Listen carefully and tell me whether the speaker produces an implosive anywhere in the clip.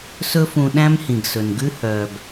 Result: yes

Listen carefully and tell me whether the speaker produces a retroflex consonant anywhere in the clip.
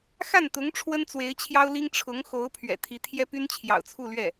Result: yes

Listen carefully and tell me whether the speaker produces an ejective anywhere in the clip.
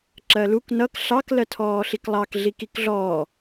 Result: no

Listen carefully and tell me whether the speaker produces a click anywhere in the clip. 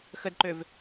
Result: yes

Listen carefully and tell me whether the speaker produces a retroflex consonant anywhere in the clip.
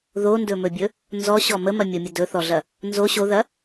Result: no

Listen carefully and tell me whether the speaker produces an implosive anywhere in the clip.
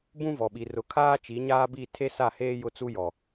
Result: yes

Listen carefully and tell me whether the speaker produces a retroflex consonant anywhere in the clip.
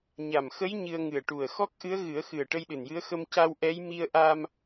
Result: yes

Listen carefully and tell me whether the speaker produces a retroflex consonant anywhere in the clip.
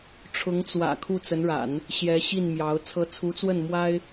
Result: yes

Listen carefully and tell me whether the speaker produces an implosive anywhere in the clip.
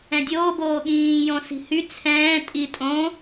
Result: yes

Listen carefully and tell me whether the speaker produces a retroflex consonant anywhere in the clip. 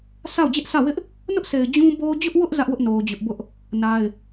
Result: no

